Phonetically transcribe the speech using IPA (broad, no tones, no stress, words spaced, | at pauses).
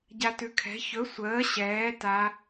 ɟatʉkʰɛ̤ çɵ sʷəː ɕɛː ta